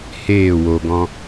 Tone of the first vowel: falling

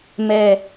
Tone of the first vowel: low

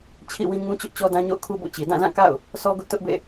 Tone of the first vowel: falling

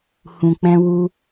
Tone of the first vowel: low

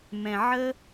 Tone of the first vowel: low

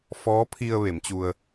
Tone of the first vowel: rising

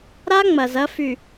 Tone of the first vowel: high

